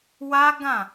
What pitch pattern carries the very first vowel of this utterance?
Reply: high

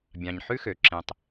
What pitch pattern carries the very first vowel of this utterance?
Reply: low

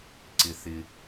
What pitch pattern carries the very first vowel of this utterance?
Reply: low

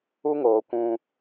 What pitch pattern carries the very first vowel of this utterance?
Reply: high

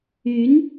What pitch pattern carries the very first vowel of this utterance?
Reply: rising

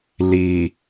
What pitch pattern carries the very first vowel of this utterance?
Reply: low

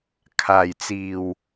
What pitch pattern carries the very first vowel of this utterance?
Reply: low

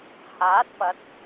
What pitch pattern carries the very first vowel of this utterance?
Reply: rising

